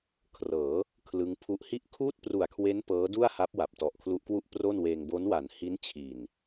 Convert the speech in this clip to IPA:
kʰrɤː˩˦ | kʰlɯ˦˥ŋ pʰu˦˥ʔ hi˥˩ʔ kʰuː˥˩t̚pru˨˩a̯kʰwe˦˥n pɤː˦˥du˥˩a̯ha˦˥p̚ wa˨˩p̚ tɔ˨˩ʔkʰlu˦˥ʔkwu˥˩ʔ pro˥˩nweː˧ŋ bo˦˥nwa˩˦nhi˦˥n t͡ɕʰi˨˩n

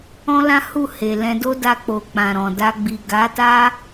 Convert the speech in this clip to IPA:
ɔ̃˦lã˦hu˦˨ he˨lɛ̃˧do˦ da˧k͡po˨ k͡pã˨ɾɔ̃˨ da˧ɡ͡bi˨ ɡa˨˦ta˦

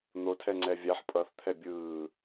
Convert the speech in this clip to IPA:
n̪otʰɛŋ͡ǀɛ vʲaħ pʼʌθt̪ʰɛ bʲɯː

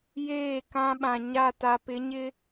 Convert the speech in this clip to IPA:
jeː˦˨kã˦ɓã˨ ɲa˦˨ ta˨pɪ˨˦ɲɪ˦

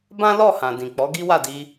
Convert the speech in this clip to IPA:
bã˦lɔ˦˨ hã˨dĩ˨k͡pɔ˨˦ ɡi˦wa˦˨di˧

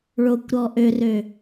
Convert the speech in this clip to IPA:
ɭokʷɾɔ ʔørø

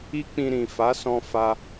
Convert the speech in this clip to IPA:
i˦k͡pĩ˧ɾĩ˨ fa˨˦sɔ̃˧ fa˧

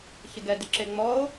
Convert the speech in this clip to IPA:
çɪɡɛ dɪǁeŋ͡mɔo̯

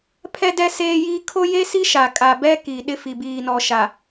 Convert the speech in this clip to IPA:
pʰɛ˦dɛ˦ seː˦jiː˦ kʰo˦je˦si˦ ʃa˨kʼa˨bɛ˦ ki˨ɗɪ˦fi˨ biː˨nɔ˨ʃa˨

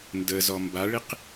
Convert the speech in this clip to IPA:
ndəzɔ mbaɭiq

